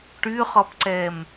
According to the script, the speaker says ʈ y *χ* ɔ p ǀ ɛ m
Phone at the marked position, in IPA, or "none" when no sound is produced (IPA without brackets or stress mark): χ